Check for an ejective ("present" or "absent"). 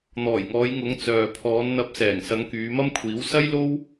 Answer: absent